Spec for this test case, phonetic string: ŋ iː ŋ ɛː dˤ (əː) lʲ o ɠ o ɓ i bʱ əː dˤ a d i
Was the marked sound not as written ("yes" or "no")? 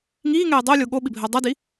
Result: no